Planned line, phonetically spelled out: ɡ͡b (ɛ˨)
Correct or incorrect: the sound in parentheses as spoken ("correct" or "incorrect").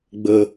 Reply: incorrect